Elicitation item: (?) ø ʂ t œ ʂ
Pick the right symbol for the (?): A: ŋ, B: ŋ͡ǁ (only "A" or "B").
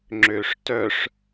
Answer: B